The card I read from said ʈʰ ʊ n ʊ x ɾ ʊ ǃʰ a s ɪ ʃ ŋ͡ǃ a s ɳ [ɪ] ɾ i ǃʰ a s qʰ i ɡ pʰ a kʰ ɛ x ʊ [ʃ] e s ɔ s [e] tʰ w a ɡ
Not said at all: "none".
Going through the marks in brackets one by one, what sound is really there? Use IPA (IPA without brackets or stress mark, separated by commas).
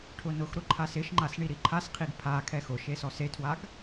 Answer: i, ʃ, e